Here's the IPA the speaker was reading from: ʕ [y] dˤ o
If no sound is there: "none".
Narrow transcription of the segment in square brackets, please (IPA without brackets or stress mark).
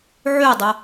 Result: y